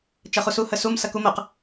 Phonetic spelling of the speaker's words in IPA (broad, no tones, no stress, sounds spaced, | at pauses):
t͡ʃ ɐ χ u s u h ə s u m s ɐ k u m ə q